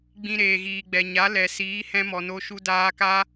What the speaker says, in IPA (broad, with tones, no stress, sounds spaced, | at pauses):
ɡ͡b ĩ˧ ɾ eː˨ ɣ iː˨ ɡ͡b ɛ˨ ɲ a˨˦ l ɛ˨ s iː˨˦ h ɛ̃˦ m ɔ˨ n o˦ ʃ u˧ d aː˧ k a˦